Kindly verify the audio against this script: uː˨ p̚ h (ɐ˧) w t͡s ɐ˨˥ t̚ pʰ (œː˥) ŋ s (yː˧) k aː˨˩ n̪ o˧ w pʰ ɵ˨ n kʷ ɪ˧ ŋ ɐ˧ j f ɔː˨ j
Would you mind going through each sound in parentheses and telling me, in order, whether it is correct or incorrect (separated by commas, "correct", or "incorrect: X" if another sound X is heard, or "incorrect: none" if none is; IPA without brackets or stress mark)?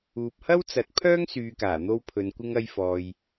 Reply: incorrect: ɐ˥, correct, incorrect: yː˨